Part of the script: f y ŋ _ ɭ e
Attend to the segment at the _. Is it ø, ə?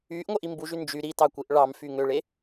ø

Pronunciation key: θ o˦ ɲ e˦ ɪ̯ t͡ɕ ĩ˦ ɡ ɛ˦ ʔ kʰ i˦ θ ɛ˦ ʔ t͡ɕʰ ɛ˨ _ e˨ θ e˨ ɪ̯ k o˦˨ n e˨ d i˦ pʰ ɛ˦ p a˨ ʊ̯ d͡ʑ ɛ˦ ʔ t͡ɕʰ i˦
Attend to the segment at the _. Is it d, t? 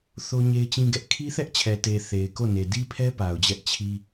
t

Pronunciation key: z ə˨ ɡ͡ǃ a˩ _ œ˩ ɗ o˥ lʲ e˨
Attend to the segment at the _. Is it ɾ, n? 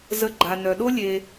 n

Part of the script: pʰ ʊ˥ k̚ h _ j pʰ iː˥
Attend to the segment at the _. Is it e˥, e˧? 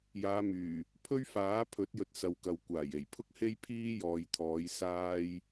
e˥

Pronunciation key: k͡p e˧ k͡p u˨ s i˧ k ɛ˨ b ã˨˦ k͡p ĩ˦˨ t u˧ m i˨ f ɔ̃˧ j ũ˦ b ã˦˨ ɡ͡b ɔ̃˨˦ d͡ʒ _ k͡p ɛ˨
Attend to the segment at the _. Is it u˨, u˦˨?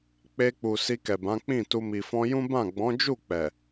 u˦˨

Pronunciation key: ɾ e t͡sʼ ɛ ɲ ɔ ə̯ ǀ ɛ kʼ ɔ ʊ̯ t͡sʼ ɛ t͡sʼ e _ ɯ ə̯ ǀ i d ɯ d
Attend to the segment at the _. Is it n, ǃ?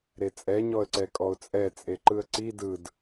ǃ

